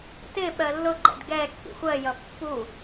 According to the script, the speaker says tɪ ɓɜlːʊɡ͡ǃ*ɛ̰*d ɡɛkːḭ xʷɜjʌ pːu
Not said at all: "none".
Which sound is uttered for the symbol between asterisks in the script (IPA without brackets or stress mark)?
ɛ̰